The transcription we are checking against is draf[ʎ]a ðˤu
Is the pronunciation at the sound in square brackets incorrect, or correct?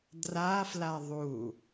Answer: incorrect